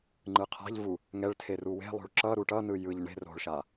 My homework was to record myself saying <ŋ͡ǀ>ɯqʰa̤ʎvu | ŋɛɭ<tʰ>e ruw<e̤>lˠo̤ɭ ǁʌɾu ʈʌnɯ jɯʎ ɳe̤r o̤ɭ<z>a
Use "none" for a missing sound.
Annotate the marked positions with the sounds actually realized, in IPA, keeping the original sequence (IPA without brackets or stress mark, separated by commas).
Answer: ŋ͡ǃ, tʰ, e̤, ʃ